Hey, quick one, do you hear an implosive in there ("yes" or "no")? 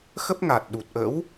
yes